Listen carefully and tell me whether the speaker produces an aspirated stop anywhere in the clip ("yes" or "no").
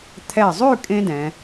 yes